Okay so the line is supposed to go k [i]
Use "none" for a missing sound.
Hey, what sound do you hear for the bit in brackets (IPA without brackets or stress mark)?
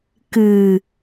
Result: ɨ